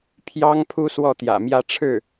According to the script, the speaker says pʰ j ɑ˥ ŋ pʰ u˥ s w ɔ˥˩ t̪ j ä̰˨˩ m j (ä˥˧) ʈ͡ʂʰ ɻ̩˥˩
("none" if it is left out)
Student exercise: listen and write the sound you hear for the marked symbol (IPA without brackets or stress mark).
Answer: ä˥˧